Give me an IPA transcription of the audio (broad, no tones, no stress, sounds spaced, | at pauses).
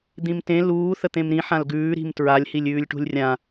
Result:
d̪ ĩ m t ẽ l uː θ ə t̪ ẽ m ɾ ĩ ħ ã l ɡ ʉː ɾ i̤ m t ɹ a lʲ h i lʲ ʉː lʲ ʈ ṳ lʲ rʲ ã